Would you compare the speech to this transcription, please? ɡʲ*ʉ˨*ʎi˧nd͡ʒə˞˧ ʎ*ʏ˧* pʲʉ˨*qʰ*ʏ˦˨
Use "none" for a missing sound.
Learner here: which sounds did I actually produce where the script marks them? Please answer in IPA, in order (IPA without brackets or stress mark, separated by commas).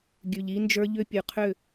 ʉ˨, ʏ˧, qʰ